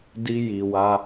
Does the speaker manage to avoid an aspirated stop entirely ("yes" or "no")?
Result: yes